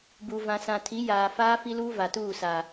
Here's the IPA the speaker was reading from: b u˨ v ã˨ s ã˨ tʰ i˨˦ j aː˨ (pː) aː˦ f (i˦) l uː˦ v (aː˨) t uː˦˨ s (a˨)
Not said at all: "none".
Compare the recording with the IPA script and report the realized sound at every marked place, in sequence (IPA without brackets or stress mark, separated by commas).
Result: f, i˦, a˨, a˨